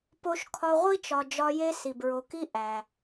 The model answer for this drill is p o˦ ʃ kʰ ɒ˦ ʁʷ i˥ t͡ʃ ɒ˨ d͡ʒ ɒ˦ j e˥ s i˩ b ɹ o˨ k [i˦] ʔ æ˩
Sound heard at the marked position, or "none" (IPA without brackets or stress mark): i˥